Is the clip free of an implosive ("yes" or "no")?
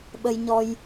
no